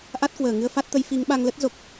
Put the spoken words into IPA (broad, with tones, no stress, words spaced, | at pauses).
ʔa˦˥t̚kwəː˧˩ŋɨ˧ə̯ fa˦˥t̚t̪ə˨˦j fi˨˦ŋ ɓa˧ŋlə˦˥t̚zo˨˩k̚